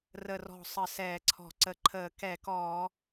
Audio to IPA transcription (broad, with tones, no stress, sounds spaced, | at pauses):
r ə˧˩ r ɔ̤˧˩ sˤ ə˧˩˧ s ɛː˧˩˧ ǀʰ ɔ̤˧˩˧ ǀ ə˧˩ ǃʰ əː˧˩˧ k ɛ˧˩˧ k ɔː˧˩˧